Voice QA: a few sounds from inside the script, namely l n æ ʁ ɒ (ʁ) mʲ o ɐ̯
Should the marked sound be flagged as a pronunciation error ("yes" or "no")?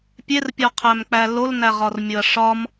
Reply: yes